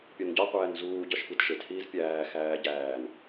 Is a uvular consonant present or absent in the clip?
present